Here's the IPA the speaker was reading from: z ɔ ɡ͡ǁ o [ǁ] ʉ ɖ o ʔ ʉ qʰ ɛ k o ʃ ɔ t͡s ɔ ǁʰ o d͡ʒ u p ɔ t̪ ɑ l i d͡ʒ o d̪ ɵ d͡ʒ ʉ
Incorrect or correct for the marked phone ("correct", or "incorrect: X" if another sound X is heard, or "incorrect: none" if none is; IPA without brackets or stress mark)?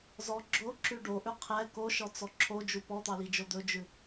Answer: correct